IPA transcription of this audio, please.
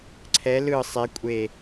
ǀʰ ɛ l ɯ sˤ e kʷʼ e

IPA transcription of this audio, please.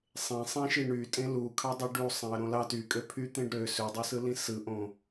sˤ ẽ sˤ ẽ ʃ i ɳ y tʼ ẽ l u kʰ ɑ dˤ ɯ ɖ u sˤ ẽ ɐ̯ ɾ õ l ɑ t y kʼ ø pʰ y t̪ ẽ ɖ ɾ ø s ø dˤ i s ɯ l ĩ s ɯ ʔ õ

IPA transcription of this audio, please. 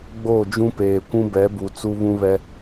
ɡ͡b o˦˨ d͡ʒ ũ˦ p eː˨ kʷ ũ˦ b ɛ˨˦ b u˨ t͡s u˦ β ũ˦ β ɛ˦

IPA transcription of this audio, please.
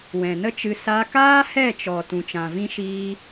w ɛ̃˨ n ə˦ t͡ʃ ɨ˧ s a˧ k aː˦ h ɛ˦˨ t͡ʃ ɔ˨ t ũ˨ t͡ʃ ã˨ v ĩ˦ ʃ iː˦

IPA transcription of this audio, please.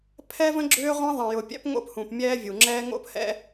pʰ ɛ˦ v ə̃˦ ɡ͡ǁ ʏː˦ ʁʷ ɛ̃˦ ðˤ ɛ̃˨ j ʊ˨ pʲ ɛ̰˦ p ŋ o̰˦ p h ũ˨ p mʲ ɛː˦ vʲ u˨ ŋ͡ǁ ɛː˦ ŋ o̰˦ p h ɛ̰˦

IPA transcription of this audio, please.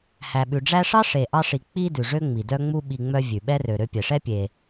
h æ˨ ɓ ʉ˨ ɖ͡ʐ æ˦ ʂ ɑ˥ ʂ e˨ ʔ ɑ˦ ʂ i˨ k͡p i˦ d ʉ˩ ʐ ø˥ ŋ͡m i˩ d œ˦ ŋ͡m u˦ ɓ i˨ ŋ͡m œ˦ vʲ ʉ˩ ɓ ɛ˥ r ø˨ ɾ ø˦ pʲ ɛ˩ ʂ ɛ˥ pʲ e˩

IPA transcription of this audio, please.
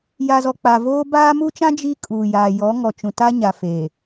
j a˨ z ɔ˨ k͡p a˨ v oː˦ b aː˦ m u˦ t͡ʃ ã˦ d͡ʒ i˦ kʼ uː˨ j aː˨ j ɔ˨˦ ŋ ɔ˨ t͡ʃ ũ˨ t a˦ ɲ a˨ f e˨

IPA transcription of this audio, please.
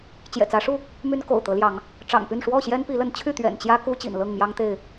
t͡ɕ j ɛ̰˨˩ t͡s ä˨˦ ʂ u˥˨ | m y˦ n k o̰˨˩ ʊ̯ t̪ ɤ˨˦ l j ɑ˨˦ ŋ | ʈ͡ʂ ɑ̰˨˩ ŋ p y˥˨ n ʂ w ɔ˥˨ ɕ j ɛ˦ n p i˨˦ l ə˨˦ n t͡ɕʰ y˥˨ t̪ ɥ ɛ̰˨˩ n t͡ɕ j ä˦ k u˦ t͡ɕ ḭ˨˩ n l ɤ˥˨ ŋ m j ɑ˦ ŋ t̪ e˥˨ ɪ̯

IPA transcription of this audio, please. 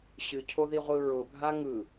ɕ ɨ cʰ o ð i ʁʷ ɯ ɹ ʊ bʱ a ŋ ɯ

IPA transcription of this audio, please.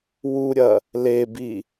w u ɾʲ ɐ | l e b i

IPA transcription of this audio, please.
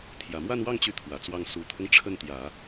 t̪ʰ j ä˨˩ m w a˥˧ n w ɑ˥˧ ŋ t͡ɕ y˥˩ t̪ʰ w ä˨˩ t͡s w ɑ˥˩ ŋ s u˨˩ t̪ʰ ʊ˦ ŋ ʈ͡ʂʰ ə˥˩ n t̪ j ä˨˩˦

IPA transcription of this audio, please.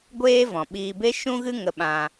ɡʷ eː˦ v ɔ̃˨ ɓ iː˧ b e˦ ʃ ũ˦ ɣ ɨ˦ ŋ ə˧ ɓ ã˧

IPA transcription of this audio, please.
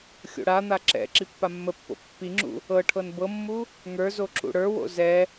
xʲ o̰ ɽ a n̪ a ǁ ɛ̰ ǁ i pː a mː ə pː o̰ pː i ŋ͡ǁ ṵ | ɤ ʈʰ ɤ n b ɤ mː u | ŋ ə˞ z o ǁ ṵ ɽ ə˞ w o̰ z ɛ

